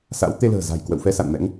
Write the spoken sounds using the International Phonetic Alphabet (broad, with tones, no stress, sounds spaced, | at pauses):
s a̰˧˥ w t̪ e˧ l ə̤ː˨˩ z a̤˨˩ j k w ə̰˧˨ w f ɛ˧ s a̰˧˨ n m ɛ̰˧˥ ŋ